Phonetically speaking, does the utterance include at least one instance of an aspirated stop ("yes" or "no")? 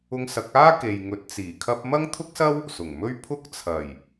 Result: yes